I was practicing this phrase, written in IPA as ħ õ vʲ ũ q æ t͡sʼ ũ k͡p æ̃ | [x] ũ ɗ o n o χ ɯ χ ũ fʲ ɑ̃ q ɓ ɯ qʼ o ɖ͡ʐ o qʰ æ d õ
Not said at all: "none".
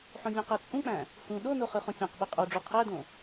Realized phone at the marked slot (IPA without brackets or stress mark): h